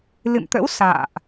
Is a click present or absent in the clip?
absent